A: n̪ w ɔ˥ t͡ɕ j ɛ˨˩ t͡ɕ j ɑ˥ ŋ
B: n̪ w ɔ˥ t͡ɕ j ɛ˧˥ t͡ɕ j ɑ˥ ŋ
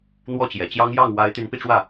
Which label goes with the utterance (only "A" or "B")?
A